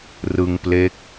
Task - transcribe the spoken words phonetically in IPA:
r ɯ˧ ŋ p l e˦˥ k̚

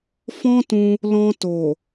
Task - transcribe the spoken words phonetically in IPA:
f ɔ̃˦ t ũ˧ | l ɔ̃˧ t o˨

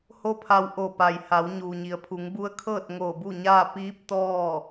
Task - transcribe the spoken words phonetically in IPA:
h o˥˨ pʰ a˧ w ʔ o˧˩ p a˩ j h a˩˧ w ɲ uː˩ ɲ i˩˧ ə̯ pʰ u˩˧ ŋ b u˧˥ ə̯ kʰ ɤː˥˨ t̚ ŋ oː˧˩ b u˥˨ ɲ aː˥˨ p iː˧˥ p̚ t̪ ɔː˥˨

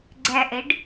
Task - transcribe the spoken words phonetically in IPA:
ɡ͡ǀ æ ʔ ɛ ɖ

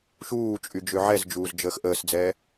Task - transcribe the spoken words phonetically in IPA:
ʃ uː t͡ʃʼ y d͡ʒ ø ʕ ɛ z d͡ʒ uː z d͡ʒ əː x ʔ əː s d͡z ɛː

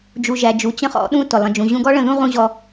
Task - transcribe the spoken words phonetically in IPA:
d͡ʒ u˩ ʒ æ˩ d͡ʒ u˩ t͡ɕ ə̃˥ χ ɔ̰˩˥ ɗ ũ˥ t ʊ˩ lˠ ə̃˩ d͡ʒ ũ˩ ʑ ũ˧ ɡ ɔ˥ ɭ ə̃˥˩ ð ũ˥ ʁ ũ˥ ʑ ɔ˧

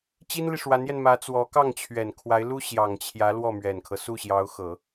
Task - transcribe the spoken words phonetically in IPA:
t͡ɕ i˥ n l i˨ ʂ w a˧˥ n j ɛ˧ n m ä˧˥ t͡s w ɔ˧˥ k ɑ˥˩ ŋ t͡ɕʰ ɥ ɛ˨˩ n kʰ w a˧˥ ɪ̯ l u˥ ɕ j ɑ˨˩ ŋ t͡ɕʰ j ä˧˥ l w ɔ˥˩ m ɥ ɛ˨˩ n kʰ ɤ˦ s u˥˩ ɕ j ɑ˧˥ ʊ̯ x ɤ˨˩˦

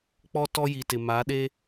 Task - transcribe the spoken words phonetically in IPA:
k͡p ɔ˦ t ɔ˦ j i˨ t ɪ˨ m a˨˦ ɗ e˦

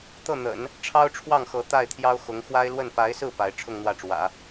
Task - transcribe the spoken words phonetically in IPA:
t̪ ɤ˥˩ n̪ ə̰˨˩˦ n | ʈ͡ʂʰ ɑ˥ ʊ̯ ʈ͡ʂʰ w ɑ˥˩ ŋ x ɤ˧˥ t̪ a˥˩ ɪ̯ t̪ʰ j ɑ˥ ʊ̯ x ʊ˧˥ ŋ x w a˥ ɪ̯ l w ə˥˩ n p a˧˥ ɪ̯ s ɹ̩˥˩ p a˧˥ ɪ̯ ʈ͡ʂʰ ʊ˥˧ ŋ n̪ w ä˥˩ ʈ͡ʂ w ä̰˨˩˦

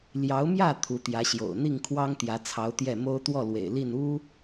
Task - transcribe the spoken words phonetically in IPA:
l j ɑ˧˥ ʊ̯ m j ä˥˩ t̪ʰ u˧˥ t̪ j ä˧˥ ɕ j o̰˨˩ ʊ̯ n̪ i˥˩ ŋ kʰ w ɑ˥ ŋ t̪ j ä˧˥ t͡sʰ ɑ˧˥ ʊ̯ t̪ j ɛ˥˩ m o˥ ʊ̯ t̪ w ɔ˥˩ l w ḛ˨˩ ɪ̯ l i˥˩ n u˥

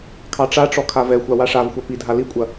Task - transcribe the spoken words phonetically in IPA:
kʰ ɑ ʈ͡ʂ a ʈ͡ʂ ɔ kʰ a v ɛ xʷ a w a ʂ a v xʷ a p i dʱ a l i kʷʼ ɐ

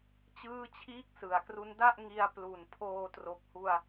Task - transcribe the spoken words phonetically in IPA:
t͡ɕ ɯː˥˩ t͡ɕʰ iː˥˩ k̚ s ɯ˩˦ a̯ k r u˦˥ n d a˥˩ ʔ ŋ i˧ a̯ p l u˨˩ n pʰ oː˧ t r o˨˩ k̚ h u˧ a̯

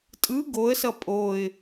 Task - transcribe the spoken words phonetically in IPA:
tʼ ɯ ɡ o ə̯ s ʌ pʼ o ɪ̯

